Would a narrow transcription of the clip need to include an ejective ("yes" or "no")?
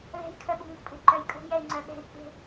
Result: yes